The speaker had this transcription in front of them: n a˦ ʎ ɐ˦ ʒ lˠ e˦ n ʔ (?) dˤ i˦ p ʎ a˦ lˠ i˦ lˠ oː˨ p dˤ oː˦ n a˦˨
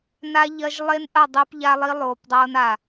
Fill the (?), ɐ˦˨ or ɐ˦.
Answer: ɐ˦˨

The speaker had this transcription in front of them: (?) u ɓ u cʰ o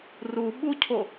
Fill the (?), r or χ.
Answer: r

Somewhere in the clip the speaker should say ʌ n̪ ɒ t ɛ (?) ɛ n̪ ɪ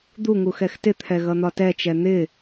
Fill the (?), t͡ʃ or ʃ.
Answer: t͡ʃ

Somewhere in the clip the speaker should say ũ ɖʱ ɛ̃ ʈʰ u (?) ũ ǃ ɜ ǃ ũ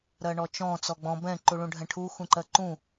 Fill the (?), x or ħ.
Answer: x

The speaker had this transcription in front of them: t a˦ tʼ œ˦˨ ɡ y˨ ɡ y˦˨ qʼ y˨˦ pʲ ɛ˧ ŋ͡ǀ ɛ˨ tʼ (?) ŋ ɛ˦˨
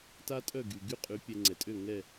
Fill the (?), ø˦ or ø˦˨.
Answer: ø˦˨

